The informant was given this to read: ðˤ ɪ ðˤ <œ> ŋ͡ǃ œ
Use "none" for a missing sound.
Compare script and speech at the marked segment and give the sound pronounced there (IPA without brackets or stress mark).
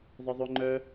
ø